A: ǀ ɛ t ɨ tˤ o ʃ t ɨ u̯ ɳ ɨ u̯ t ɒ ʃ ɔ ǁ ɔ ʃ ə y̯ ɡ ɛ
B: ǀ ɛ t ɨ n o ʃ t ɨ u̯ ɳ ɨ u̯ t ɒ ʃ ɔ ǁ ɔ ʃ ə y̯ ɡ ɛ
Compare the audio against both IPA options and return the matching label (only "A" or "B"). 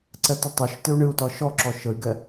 A